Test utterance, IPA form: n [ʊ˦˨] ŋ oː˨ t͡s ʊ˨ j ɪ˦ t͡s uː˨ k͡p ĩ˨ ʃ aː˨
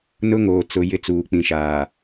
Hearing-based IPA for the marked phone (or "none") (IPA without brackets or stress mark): ʊ˦